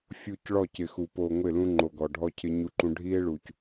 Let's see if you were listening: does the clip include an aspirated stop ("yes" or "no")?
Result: yes